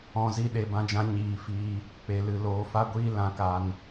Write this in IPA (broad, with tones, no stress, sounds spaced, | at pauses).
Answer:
ɔ̃˨ z i˧ ɗ e˨ b ã˧ d͡ʒ ã˧ ɲ iː˨ f iː˧ | k͡p e˨ l ɨ˨ l oː˨ f a˦ ɡʷ iː˦ l ã˧ k a˧ n